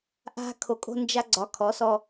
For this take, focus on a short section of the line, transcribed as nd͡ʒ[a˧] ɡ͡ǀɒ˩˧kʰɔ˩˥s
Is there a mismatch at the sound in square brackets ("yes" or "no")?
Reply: no